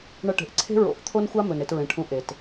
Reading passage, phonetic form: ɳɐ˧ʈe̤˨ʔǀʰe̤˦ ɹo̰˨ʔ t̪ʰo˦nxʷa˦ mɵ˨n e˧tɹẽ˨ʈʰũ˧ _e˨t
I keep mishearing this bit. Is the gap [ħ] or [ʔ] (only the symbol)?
ʔ